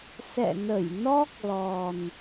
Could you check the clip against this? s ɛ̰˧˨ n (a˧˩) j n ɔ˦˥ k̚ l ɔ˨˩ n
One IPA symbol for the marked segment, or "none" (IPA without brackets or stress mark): ə˧˩